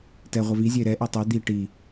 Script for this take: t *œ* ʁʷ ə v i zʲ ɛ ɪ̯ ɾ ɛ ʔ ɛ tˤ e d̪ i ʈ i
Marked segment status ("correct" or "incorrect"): incorrect